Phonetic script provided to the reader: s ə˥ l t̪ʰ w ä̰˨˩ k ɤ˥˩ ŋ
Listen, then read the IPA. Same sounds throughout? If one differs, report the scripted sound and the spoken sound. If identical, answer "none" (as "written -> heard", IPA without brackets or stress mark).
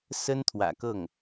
l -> n